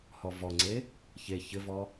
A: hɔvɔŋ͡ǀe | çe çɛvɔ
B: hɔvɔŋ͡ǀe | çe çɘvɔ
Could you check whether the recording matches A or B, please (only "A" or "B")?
B